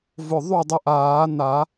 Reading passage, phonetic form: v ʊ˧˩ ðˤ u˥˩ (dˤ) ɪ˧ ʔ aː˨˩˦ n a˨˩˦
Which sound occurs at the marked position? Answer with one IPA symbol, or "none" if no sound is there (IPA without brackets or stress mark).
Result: dˤ